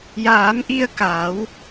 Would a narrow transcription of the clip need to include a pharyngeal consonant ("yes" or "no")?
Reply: no